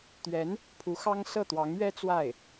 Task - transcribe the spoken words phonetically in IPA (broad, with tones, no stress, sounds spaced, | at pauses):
t̪ ɥ ɛ˧˥ n | pʰ u˧˥ x ɑ˥ ŋ s ɤ˥˩ t̪ w ɑ˧˥ ŋ ɥ ɛ˥ t͡s w a˥˩ ɪ̯